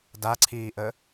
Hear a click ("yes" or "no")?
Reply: yes